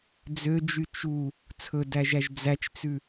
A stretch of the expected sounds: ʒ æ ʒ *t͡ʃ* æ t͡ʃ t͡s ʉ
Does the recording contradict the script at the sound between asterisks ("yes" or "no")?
yes